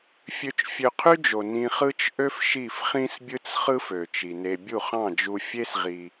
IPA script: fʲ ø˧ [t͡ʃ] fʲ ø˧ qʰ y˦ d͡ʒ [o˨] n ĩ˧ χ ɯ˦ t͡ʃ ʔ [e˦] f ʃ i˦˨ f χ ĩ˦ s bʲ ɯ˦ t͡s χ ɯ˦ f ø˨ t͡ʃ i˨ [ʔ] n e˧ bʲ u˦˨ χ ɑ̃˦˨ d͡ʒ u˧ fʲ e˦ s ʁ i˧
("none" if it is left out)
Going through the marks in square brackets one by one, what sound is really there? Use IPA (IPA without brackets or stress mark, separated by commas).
t͡ʃ, o˨, ø˦, none